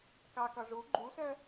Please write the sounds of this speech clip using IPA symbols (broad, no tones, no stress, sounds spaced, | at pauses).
k ɑ k ɒ ʐ u ɡ͡ǃ u s œ